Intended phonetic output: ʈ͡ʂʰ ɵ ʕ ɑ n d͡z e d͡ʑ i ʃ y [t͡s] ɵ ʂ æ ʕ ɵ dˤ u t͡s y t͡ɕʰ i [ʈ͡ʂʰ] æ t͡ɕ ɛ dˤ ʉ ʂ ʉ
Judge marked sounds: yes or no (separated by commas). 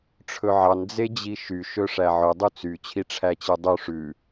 no, yes